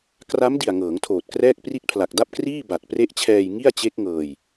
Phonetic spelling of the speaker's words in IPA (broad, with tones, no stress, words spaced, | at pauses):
kra˦˥m di˨˩a̯ ŋɤː˩˦ŋtʰoː˨˩t̚krɛː˥˩k̚ pri˦˥t̚pʰla˨˩k̚da˥˩p̚kriː˥˩ ba˨˩t̚pre˦˥ʔt͡ɕʰɛː˧j ŋi˥˩a̯t͡ɕe˦˥k̚ŋɤː˧j